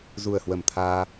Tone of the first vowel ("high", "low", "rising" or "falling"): low